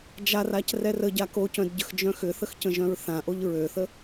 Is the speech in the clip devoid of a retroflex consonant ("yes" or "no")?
yes